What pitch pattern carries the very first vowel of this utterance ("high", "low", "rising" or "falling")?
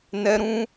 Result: high